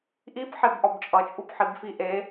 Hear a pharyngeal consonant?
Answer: yes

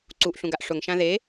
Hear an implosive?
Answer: no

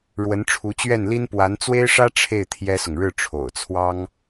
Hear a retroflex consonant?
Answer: yes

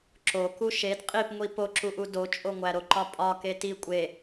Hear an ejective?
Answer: yes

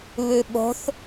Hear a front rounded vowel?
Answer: no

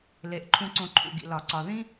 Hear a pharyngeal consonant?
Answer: no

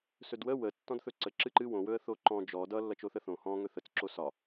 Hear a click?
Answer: yes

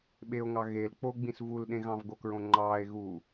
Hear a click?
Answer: yes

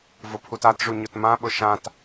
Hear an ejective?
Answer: no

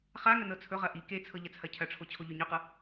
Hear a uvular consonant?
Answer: yes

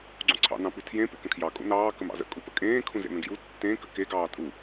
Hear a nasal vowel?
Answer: yes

